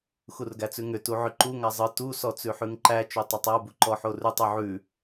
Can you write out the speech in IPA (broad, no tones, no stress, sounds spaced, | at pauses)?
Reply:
x u r ɡ æ t͡s ʉ ŋ ʏ t u ʕ ʏ ǃ u ŋ a zˤ ɯ t u s ɔ t͡s ʉ ħ ʉ ŋ ǃ æ t͡ʃ o tˤ ʏ tˤ a b u ǃ ɔ ħ o r ʉ tˤ u ʕ ʉ